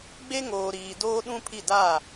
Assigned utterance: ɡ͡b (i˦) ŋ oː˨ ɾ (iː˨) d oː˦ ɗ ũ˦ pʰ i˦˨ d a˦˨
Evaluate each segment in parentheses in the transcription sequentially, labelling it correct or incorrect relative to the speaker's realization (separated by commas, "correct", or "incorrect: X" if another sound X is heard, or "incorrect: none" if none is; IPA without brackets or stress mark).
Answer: incorrect: e˦, correct